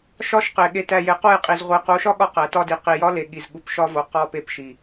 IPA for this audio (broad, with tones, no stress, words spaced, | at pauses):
ʃɒ˦ʃqe˨ ɠe˨tæ˨ je˨qo˦˨jqʼi˨z ʁʷi˨qo˨˦ʃɒ˦ ɠɒ˦qæ˨tɒ˦di˨ qi˨jɒ˦le˨ ɠi˨zɠu˨pʃɒ˦vo˨ qɒ˦˨pe˦˨pʃi˨